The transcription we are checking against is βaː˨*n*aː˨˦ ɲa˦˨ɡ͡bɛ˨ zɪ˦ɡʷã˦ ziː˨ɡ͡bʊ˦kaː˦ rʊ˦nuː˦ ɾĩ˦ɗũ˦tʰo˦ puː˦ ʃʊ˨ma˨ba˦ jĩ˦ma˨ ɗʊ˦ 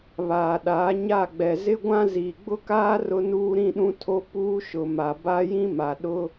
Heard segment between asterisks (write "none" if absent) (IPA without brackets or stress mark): ɗ